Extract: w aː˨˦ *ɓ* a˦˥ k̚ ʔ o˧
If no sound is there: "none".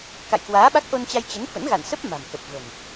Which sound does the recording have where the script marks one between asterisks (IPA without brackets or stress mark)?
ɓ